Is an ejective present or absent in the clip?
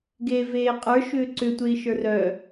present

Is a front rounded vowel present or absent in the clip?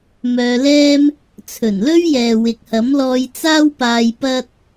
present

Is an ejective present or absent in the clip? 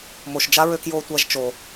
absent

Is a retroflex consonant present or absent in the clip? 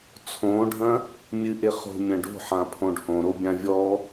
present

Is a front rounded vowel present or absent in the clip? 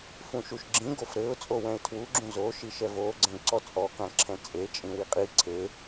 absent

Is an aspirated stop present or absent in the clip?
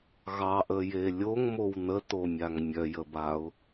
absent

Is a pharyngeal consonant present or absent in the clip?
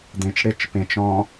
absent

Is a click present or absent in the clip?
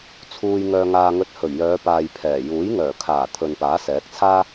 absent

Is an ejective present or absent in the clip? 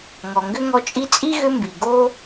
present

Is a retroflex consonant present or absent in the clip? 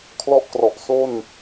absent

